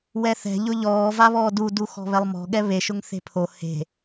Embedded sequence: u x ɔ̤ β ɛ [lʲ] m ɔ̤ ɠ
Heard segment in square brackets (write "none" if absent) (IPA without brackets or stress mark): lˠ